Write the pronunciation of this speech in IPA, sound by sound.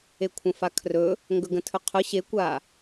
e kʷʰ ə̃ f a kʰ r ɵ | ŋ ɡ ɵ ɡ ə̃ tʰ ɵ qʰ ʊ ɕ e kʷ a

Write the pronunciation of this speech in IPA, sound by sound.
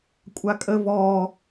kʷʼ a kʼ ə v ɔ

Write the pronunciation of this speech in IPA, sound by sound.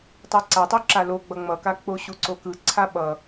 tˤ ɯ ǀ a tˤ u ǁ a l o ɡ͡b ʌ ŋ͡m ʌ k a k͡p o ɕ u ǀ o k ɯ ǀʰ a ɓ ʌ

